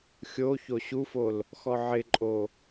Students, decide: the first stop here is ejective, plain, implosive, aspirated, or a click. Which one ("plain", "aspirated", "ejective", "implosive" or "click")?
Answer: click